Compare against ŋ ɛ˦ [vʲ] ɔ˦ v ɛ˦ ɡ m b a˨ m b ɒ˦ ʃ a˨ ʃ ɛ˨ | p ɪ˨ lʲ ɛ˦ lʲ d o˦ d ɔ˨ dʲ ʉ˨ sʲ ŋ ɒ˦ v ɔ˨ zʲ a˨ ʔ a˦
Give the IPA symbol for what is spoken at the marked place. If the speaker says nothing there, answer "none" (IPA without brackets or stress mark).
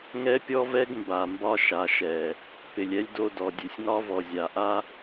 pʲ